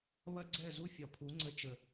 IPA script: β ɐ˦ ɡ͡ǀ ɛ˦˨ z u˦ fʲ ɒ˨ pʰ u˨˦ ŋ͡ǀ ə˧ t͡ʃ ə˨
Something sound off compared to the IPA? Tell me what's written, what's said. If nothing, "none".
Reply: none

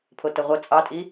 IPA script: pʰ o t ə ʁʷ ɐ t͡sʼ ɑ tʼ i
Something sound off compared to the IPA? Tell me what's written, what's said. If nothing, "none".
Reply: none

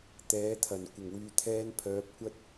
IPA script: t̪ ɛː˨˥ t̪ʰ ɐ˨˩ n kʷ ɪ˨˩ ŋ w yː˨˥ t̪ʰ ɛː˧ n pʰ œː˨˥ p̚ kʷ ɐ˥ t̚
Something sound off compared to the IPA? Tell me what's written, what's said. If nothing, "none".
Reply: yː˨˥ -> yː˨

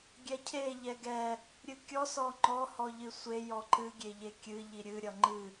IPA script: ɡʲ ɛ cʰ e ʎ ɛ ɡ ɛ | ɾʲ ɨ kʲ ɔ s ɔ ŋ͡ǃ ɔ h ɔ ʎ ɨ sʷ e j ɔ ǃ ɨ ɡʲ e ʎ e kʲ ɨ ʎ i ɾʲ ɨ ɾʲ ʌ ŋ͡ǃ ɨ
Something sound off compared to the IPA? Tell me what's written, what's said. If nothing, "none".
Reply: none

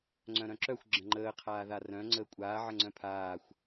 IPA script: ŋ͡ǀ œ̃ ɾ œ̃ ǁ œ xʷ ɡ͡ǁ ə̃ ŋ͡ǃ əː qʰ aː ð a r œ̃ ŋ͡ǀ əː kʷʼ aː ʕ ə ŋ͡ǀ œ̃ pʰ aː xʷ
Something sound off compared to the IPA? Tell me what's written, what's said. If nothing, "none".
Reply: none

